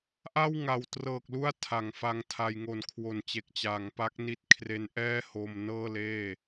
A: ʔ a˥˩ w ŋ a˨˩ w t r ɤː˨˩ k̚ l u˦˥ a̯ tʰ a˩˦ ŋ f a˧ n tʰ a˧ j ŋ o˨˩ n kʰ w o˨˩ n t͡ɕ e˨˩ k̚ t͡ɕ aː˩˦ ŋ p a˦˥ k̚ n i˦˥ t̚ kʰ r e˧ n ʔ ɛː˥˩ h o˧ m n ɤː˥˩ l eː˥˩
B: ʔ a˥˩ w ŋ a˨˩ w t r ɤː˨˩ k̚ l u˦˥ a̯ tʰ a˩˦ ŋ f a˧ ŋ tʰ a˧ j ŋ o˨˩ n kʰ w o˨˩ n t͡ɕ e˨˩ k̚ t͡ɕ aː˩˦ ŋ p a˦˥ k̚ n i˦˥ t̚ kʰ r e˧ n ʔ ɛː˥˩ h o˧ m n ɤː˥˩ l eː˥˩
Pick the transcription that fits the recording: B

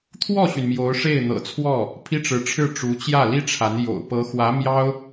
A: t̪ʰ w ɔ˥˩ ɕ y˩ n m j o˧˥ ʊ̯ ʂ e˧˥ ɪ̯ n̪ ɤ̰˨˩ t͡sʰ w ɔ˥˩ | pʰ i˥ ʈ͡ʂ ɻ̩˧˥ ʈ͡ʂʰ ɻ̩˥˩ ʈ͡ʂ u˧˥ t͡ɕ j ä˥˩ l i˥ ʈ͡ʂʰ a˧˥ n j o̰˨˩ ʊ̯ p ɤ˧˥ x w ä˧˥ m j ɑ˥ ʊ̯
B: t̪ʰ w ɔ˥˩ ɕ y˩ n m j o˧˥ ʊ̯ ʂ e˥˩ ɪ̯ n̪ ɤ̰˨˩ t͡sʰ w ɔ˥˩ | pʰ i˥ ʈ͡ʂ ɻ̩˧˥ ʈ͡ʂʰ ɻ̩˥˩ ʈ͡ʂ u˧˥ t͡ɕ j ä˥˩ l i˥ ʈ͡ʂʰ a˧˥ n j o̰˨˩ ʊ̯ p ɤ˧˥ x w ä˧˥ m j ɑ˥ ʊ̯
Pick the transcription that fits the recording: B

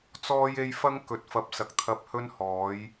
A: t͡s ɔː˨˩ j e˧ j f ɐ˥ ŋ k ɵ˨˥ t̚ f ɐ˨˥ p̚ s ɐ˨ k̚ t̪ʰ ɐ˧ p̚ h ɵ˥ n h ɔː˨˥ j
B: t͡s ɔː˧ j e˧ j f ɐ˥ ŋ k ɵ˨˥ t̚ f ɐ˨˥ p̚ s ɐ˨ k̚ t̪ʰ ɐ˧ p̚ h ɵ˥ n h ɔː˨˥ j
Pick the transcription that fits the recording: B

